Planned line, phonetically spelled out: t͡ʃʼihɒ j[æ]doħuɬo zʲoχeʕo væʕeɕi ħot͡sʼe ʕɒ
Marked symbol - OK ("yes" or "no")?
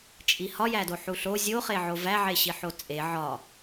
yes